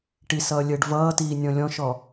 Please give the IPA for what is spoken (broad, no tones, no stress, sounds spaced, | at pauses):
ʈ i s ʌː lʲ əː ɖ v ʌː t iː nʲ ɔ̃ lʲ ɔ̃ ʃ ɔ